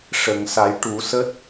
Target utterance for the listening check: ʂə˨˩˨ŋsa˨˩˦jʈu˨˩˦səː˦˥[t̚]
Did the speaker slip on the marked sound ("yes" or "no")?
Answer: no